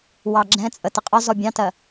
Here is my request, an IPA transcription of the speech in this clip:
w ɑ ɡ͡ǁ ɛ̃ t͡sʼ ə t ɪ qʼ ɒ z ɔ bʲ ɑ̃ t ɜ

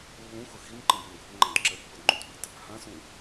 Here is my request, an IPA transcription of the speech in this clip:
lː ũ x ʊ x i n ǃ ə̃ b ʊ n ɡʱ ʊ ŋ͡ǃ ã d ǁ ə pː u d ŋ͡ǃ ũ t ɓ ə̤ t | h ã s ũ

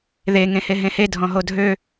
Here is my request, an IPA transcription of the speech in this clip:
ð e ŋ ẽ h e ɦ ẽ h e dʱ ɔ̃ ɦ o dʱ ø

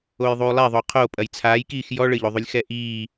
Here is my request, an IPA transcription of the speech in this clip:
o j ðˤ uː lˠ ɛ ðˤ o qʰ o pʼ ɐ j t͡sʰ aː j k iː x j ɔ ɭ ɘ ʎ o ðˤ u lʲ x ɛ ʔ iː

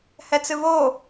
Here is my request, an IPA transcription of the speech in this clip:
h ɛ t͡s ɨ β o

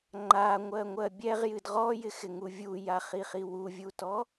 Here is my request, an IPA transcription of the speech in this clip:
ŋ͡ǃ a ŋʷ ɜ ŋʷ ɜ bʲ ɛ ʁ j ɨ d ʁ ɔ j ɪ x ɪ ŋ u vʲ u j a χ i χ i w u vʲ u t ɔ

